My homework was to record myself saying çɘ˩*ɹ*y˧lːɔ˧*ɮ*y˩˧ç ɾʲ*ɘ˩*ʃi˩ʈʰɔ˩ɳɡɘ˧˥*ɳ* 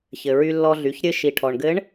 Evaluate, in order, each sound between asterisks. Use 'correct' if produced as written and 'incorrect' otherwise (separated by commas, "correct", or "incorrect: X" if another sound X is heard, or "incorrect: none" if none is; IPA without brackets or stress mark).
correct, correct, incorrect: ɘ˧, correct